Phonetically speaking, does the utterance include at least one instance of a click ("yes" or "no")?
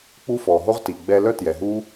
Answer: no